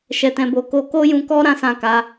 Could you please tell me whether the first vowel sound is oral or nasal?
oral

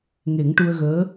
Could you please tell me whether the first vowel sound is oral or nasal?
oral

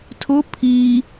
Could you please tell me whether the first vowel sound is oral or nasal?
oral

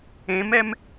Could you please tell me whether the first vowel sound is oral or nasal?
nasal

